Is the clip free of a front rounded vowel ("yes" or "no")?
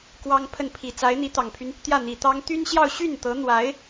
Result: no